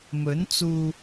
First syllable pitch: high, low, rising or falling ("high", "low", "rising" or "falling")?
rising